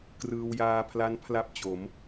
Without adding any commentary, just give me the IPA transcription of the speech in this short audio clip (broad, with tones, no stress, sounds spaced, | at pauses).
k r ɯː˧ w j aː˧ pʰ l a˦˥ n pʰ l a˥˩ p̚ t͡ɕ o˩˦ m